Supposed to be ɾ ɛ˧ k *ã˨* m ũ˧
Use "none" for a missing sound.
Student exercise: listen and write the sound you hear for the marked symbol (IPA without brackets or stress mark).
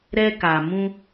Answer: a˨